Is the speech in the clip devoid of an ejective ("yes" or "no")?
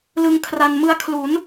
yes